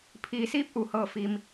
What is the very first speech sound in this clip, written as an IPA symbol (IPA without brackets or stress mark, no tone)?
pʰ